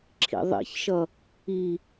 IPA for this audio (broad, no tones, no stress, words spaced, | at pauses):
ǁʰḭðˤḭçʃʌ | i